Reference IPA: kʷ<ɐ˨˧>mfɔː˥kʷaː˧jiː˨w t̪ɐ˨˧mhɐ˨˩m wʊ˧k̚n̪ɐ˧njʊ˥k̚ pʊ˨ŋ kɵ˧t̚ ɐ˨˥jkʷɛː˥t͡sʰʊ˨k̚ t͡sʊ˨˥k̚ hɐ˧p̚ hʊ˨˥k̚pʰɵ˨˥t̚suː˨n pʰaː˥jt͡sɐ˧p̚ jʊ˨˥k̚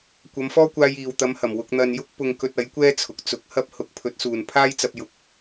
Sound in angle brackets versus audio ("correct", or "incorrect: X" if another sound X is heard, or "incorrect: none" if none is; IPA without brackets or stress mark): correct